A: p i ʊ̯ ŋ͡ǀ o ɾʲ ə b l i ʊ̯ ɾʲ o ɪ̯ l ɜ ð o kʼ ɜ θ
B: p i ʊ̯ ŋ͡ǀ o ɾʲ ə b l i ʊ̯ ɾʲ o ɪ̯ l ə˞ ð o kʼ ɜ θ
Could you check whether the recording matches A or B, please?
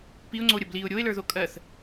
B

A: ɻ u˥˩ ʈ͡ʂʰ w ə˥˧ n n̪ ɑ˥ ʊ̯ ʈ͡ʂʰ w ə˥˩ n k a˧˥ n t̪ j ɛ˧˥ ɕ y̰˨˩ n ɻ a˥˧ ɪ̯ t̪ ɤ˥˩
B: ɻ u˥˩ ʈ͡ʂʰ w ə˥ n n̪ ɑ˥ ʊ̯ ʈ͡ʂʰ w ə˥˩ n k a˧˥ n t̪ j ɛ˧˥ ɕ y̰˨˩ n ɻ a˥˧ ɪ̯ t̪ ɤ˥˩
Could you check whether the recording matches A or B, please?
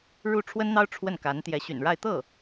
B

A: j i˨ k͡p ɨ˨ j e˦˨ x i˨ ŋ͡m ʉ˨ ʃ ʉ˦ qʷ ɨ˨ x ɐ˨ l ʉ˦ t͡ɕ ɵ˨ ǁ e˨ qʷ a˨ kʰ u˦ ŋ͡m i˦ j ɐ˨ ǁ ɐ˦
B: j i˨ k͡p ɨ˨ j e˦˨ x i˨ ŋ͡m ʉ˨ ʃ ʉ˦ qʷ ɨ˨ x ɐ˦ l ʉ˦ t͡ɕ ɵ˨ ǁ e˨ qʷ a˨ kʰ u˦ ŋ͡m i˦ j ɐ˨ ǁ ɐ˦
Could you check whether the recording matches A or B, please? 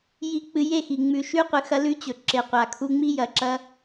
B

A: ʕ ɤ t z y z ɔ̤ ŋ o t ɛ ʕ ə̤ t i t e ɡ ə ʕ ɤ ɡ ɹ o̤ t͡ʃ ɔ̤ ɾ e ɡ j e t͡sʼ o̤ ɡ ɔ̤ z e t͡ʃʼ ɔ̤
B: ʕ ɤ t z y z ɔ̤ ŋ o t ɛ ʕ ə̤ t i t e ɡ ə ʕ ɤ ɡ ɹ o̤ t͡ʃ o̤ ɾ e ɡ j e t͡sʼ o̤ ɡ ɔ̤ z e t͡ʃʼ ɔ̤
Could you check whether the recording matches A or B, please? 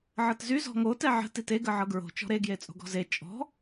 A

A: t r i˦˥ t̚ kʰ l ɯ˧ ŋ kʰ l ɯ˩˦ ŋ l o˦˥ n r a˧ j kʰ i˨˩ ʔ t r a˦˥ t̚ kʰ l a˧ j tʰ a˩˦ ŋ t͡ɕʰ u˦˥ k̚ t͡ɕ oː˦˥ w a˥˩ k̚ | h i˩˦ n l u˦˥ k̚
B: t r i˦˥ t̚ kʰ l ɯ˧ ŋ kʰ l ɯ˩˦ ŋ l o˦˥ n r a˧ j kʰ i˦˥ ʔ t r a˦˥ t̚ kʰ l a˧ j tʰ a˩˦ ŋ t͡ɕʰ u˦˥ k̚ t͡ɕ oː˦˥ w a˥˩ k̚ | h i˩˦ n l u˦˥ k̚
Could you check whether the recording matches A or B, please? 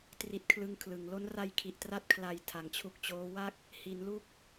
A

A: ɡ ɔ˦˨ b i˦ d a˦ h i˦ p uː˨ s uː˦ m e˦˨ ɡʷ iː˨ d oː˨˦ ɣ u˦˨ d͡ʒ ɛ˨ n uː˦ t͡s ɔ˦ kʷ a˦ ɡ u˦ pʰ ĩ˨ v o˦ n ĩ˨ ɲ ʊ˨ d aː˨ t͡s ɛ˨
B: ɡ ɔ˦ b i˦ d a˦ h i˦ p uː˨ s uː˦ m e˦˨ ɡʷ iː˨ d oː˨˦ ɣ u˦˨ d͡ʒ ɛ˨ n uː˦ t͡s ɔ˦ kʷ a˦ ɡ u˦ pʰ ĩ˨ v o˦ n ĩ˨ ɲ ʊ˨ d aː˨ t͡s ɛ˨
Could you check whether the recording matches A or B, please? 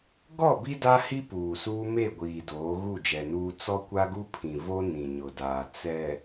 A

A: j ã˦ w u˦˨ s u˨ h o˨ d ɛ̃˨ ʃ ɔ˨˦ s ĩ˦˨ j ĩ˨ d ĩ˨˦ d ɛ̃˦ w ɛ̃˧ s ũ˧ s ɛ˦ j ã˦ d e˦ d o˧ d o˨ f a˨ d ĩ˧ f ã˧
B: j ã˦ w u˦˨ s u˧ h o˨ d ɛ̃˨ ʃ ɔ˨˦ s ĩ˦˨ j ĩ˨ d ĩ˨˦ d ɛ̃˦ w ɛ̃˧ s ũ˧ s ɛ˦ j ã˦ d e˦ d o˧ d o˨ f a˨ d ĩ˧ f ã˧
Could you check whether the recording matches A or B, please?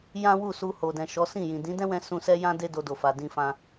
B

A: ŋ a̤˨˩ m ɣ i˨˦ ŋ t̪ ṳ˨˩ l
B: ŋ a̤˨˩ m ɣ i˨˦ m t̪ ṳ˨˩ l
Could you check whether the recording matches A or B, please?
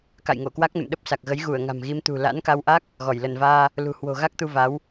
B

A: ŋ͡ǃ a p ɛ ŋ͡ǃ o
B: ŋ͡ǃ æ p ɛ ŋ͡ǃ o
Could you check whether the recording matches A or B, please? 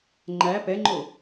B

